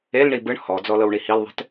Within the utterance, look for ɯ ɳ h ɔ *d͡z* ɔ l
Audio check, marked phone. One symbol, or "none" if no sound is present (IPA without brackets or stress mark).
d͡z